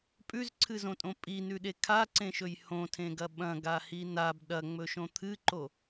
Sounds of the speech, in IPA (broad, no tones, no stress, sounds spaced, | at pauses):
pʼ ʉ z ǀʰ ɨ z õ tʼ õ pʼ i n ʉ ɗ e kʰ a ǀ ẽ ʃ ɵ j h õ tʰ ẽ ɡ ɐ ɓ ɐ̃ ɡ a h i n a b ɗ ɐ ŋ͡m ɵ ʃ õ t̪ʰ ɨ ǃ o